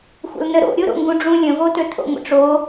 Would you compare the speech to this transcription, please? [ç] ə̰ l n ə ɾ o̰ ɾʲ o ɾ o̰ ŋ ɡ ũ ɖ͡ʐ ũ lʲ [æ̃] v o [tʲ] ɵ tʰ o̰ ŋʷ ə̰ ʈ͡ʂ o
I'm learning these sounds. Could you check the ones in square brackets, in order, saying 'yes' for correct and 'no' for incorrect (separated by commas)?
no, no, no